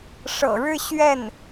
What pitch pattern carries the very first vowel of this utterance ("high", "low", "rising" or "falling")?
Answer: low